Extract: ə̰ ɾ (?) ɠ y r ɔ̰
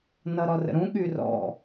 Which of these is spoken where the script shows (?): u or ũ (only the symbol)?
ũ